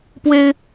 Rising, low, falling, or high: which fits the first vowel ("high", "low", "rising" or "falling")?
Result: high